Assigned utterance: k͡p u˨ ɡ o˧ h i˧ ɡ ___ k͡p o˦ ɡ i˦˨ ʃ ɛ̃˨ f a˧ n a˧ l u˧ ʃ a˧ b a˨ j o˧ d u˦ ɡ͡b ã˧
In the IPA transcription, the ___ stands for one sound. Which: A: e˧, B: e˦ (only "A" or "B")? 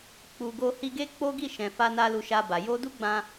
B